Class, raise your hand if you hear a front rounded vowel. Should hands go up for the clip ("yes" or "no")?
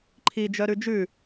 yes